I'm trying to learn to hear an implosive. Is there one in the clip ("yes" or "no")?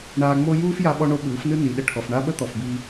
yes